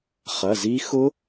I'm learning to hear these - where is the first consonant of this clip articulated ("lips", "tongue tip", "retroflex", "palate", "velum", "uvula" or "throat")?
uvula